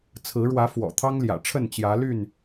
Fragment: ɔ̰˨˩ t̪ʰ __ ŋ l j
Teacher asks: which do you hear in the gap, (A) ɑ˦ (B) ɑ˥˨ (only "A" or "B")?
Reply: A